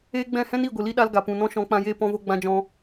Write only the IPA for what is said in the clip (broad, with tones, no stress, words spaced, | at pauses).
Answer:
eː˦ ɡ͡bɛ̃˦˨hɛ̃˦ni˦˨ɡʷɨ˨ li˦ɗa˦l ɡa˨pũ˨ nɔ̃˧ʃɔ̃˨˦k͡pã˧jeː˧ pɔ̃˧vo˧ɡ͡bã˧d͡ʒɔ̃˧